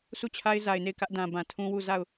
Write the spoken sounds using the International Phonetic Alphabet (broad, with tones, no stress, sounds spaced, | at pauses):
s u˦˨ t͡ɕʰ a˦ ɪ̯ z a˨ ɪ̯ n e˦˨ ɪ̯ k ä˦ ʔ d ã˨ b ã˨ tʰ ũ˦ w u˦˨ z a˦˨ ʊ̯